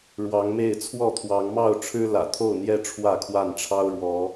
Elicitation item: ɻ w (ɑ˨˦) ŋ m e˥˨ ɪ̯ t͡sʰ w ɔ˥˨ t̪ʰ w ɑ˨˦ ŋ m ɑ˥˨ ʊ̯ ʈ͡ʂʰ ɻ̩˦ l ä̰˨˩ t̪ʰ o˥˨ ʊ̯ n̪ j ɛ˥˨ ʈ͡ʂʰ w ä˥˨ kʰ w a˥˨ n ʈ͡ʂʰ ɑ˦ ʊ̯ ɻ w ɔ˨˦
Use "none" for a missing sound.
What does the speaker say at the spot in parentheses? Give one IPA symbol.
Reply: ɑ˨˦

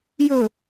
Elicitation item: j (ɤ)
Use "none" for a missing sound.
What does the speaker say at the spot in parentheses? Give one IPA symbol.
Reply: ɵ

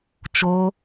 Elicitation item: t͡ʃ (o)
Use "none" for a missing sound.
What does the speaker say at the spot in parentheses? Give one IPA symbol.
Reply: o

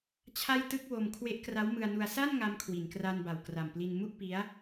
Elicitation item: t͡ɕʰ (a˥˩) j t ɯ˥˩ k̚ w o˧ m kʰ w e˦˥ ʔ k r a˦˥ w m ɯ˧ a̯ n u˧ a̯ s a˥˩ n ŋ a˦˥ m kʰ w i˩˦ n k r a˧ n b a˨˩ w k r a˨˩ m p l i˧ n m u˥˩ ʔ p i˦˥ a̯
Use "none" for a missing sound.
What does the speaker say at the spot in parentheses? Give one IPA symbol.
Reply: a˥˩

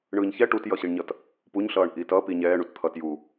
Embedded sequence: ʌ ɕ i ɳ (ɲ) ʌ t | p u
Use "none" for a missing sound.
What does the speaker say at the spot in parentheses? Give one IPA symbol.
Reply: ɲ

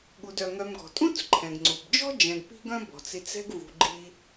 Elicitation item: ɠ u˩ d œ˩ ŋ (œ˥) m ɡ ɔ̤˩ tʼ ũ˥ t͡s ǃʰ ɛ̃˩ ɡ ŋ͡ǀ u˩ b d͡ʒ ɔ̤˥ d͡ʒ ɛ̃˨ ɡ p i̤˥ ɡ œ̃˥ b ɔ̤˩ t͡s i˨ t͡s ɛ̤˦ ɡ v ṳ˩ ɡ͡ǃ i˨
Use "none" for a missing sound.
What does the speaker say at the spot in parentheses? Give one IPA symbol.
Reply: œ˨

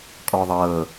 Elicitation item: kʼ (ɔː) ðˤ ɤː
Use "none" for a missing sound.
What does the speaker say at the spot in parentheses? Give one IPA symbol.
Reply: ɔː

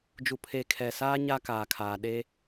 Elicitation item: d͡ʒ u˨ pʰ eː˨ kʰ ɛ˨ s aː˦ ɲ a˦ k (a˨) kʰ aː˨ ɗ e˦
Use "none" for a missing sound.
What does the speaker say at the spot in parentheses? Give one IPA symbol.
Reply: aː˨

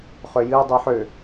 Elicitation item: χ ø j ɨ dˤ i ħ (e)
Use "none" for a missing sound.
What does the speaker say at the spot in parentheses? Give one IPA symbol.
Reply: ø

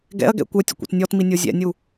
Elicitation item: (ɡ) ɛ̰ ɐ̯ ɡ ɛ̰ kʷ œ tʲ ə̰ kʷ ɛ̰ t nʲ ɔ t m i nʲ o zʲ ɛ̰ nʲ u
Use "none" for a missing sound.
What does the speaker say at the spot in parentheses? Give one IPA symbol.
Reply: ɡ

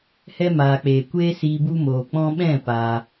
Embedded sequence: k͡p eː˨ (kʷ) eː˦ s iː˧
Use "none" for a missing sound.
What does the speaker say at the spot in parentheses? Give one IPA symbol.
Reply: kʷ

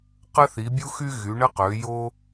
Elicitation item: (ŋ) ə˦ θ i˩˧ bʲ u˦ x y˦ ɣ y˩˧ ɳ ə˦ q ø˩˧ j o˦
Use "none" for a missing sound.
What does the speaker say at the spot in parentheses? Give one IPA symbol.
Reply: q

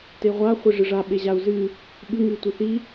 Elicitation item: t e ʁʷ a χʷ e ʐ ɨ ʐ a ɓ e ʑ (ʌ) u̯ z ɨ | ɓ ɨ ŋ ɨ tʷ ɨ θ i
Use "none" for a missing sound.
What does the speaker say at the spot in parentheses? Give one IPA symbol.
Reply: a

